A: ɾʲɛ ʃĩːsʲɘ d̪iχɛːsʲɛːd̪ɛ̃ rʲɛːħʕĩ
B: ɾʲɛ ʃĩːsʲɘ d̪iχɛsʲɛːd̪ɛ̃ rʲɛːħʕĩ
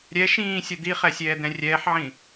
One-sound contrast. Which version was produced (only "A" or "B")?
B